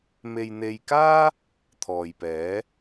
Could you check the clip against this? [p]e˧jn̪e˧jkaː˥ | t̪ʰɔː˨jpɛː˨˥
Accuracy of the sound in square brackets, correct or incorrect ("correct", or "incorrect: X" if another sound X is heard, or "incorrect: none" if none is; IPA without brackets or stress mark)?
incorrect: m